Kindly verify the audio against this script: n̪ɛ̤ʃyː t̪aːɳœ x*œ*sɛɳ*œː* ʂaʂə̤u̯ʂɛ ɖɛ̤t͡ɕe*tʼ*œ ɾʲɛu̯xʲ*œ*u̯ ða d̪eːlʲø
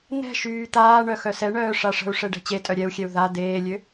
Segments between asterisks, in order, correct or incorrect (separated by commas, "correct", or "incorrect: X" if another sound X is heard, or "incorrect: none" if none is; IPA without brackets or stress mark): correct, correct, correct, incorrect: ɛ